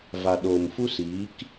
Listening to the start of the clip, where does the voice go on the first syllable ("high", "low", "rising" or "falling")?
low